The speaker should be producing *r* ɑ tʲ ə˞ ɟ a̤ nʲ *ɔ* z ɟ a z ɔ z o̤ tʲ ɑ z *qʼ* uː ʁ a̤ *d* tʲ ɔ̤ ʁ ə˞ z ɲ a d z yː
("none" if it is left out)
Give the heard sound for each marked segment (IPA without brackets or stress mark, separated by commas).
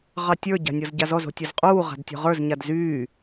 ʁ, ɔ, qʼ, d